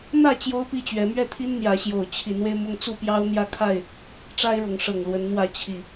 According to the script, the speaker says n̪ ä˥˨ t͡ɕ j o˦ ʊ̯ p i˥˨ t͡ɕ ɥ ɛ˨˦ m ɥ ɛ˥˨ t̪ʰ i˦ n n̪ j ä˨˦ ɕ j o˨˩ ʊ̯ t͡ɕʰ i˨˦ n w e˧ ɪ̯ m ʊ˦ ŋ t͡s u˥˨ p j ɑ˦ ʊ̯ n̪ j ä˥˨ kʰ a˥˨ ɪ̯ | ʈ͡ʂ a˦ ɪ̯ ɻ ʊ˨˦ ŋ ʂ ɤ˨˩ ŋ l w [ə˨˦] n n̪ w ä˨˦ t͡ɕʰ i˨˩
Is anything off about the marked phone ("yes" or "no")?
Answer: no